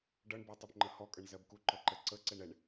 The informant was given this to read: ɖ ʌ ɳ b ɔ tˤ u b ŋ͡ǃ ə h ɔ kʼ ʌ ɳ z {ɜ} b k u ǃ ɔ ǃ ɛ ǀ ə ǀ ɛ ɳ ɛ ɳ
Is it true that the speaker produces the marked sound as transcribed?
yes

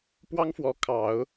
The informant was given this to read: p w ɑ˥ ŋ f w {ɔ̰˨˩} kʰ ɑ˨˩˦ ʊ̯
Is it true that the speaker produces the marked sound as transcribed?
no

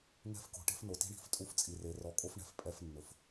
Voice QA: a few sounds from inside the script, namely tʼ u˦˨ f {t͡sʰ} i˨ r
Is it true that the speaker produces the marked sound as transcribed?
no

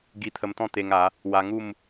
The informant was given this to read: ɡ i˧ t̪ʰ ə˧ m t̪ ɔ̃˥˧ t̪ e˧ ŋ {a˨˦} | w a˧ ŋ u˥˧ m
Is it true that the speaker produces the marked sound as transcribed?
yes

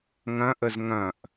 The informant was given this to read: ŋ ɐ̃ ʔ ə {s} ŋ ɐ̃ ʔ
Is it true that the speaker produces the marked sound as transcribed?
no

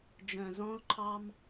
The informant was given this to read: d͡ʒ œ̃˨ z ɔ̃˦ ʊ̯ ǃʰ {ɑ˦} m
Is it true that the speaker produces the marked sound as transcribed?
yes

